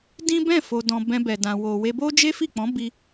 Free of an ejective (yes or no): yes